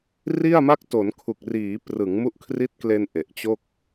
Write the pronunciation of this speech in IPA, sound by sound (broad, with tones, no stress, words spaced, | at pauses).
ri˥˩a̯ma˥˩k̚ to˩˦nkʰu˨˩k̚riː˩˦ prɯ˩˦ŋmu˦˥ʔkʰri˦˥t̚kle˧n ʔe˨˩ʔt͡ɕo˥˩k̚